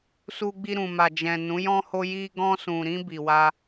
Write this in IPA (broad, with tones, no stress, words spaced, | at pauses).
su˧ɡ͡bi˧ɾũ˨ma˨ d͡ʒɛ̃˨nũ˨˦ jɔ̃˧ho˧ji˧ ɡɔ̃˧sũ˨ɾĩ˧ bi˨wa˧